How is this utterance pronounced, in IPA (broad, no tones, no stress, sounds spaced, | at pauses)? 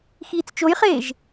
x iː t͡s t͡ʃ o j χ eː ʒ